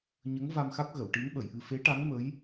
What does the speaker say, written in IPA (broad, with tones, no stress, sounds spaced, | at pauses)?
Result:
ɲ ə˧˥ ŋ v a˧ m x a˦˥ k̚ ɣ ə˨˩˨ w ʈ i˧˥ n ɓ ə˨˩˨ j ʔ ɨ˧ f e˧˥ ʈ a˧˥ ŋ m ə˧˥ j